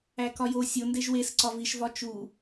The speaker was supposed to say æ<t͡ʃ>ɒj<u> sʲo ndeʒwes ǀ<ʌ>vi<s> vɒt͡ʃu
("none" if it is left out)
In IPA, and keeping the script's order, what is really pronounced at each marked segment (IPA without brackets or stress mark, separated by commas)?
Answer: k, o, ɒ, ʃ